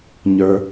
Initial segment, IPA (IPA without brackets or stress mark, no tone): ɲ